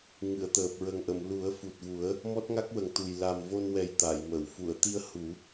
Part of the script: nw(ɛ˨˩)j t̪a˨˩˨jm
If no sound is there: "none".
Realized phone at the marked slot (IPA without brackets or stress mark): ɛ˨˩